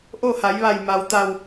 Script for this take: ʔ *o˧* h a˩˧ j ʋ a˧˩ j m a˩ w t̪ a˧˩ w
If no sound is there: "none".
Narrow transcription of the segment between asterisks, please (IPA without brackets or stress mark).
o˥˨